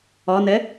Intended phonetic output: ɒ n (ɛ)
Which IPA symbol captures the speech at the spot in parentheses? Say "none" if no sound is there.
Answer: ɛ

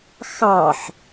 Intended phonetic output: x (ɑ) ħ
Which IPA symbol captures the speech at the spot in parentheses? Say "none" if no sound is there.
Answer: ɑ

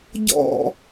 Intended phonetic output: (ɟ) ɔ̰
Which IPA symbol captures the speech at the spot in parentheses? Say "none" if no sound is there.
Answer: ɟ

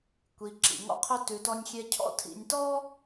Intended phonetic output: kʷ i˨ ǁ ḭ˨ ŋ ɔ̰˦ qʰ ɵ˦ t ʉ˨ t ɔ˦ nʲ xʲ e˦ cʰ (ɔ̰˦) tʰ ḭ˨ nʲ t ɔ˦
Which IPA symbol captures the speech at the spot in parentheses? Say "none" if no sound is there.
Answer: ɔ̰˦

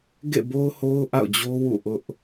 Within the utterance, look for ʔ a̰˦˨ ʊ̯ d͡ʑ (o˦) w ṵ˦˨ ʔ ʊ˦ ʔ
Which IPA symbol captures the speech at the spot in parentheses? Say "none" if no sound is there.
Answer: o˦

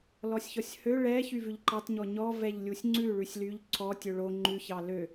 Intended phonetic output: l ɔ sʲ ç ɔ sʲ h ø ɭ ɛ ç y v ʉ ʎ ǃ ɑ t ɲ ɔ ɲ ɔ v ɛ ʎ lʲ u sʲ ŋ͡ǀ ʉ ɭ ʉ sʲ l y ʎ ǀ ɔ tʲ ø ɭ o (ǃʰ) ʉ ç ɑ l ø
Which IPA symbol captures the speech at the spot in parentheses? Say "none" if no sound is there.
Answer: ŋ͡ǃ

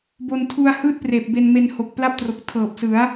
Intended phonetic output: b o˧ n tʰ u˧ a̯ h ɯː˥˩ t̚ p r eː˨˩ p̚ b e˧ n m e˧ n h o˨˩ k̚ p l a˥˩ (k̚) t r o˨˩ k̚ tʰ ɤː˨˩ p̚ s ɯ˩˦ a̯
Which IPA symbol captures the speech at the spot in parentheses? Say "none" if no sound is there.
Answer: p̚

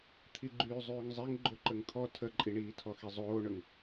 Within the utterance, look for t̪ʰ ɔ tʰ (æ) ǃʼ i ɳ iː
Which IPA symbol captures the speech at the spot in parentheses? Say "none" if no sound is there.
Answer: ə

